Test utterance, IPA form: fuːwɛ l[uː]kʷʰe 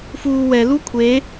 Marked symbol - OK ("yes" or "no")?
no